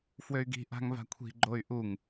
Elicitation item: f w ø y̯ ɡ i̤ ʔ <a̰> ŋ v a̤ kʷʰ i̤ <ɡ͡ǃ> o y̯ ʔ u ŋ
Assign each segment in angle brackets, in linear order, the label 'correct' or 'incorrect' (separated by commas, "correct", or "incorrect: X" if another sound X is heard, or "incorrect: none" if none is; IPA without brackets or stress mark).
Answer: incorrect: a̤, correct